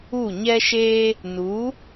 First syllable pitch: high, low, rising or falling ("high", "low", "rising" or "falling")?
falling